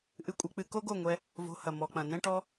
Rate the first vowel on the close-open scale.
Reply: close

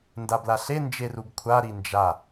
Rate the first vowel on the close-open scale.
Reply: open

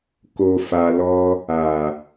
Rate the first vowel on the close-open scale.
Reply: mid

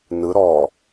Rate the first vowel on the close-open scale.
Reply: close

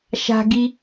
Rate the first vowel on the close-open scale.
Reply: open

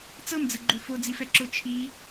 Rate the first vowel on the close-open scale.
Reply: mid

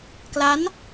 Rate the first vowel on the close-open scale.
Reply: open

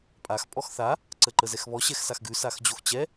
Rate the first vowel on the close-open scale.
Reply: open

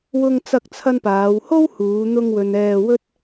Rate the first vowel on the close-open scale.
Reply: close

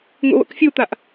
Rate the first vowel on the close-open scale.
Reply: close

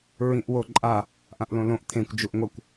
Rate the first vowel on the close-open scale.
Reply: close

